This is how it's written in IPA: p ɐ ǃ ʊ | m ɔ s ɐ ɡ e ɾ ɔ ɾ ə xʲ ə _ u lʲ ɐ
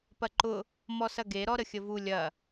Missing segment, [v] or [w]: v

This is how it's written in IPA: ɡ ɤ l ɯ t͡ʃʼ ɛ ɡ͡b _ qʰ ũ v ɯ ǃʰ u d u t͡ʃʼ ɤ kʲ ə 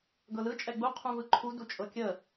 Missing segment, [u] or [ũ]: u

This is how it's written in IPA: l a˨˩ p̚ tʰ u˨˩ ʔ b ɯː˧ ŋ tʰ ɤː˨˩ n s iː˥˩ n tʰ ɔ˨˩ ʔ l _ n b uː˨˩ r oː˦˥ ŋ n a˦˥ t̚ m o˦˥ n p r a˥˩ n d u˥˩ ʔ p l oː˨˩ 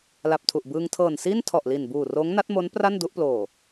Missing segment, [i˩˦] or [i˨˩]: i˨˩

